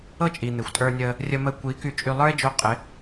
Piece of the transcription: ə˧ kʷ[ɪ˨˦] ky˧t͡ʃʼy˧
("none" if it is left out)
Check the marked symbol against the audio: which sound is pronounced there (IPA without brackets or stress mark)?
i˨˦